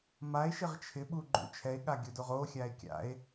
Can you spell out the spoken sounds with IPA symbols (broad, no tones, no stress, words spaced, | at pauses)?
mae̯ʃɪʁ t͡ʃʰɪɓuɡ͡ǃṵ t͡ʃʰɛe̯ɠaɡʲodoʁ oxʲae̯ kʲa̰e̯